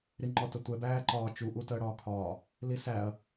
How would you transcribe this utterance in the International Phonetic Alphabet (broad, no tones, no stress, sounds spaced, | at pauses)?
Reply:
ɾ i ŋ͡ǃ ɔ t ə tʷ ɛ b æː ǃ ɒː t͡ʃ u ʔ u t əː ɽ ɒː kʰ ɒː | l i s æ ɐ̯